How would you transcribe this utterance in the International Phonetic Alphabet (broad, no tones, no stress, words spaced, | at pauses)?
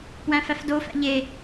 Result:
pwæ̃fæfdo fæ̰ʎe